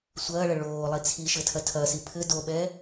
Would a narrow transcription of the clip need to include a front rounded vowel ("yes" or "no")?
no